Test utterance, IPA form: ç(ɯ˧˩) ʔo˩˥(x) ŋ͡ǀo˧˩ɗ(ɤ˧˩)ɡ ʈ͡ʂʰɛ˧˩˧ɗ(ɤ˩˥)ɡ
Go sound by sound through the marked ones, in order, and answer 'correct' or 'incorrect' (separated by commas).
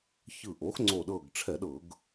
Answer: correct, correct, correct, incorrect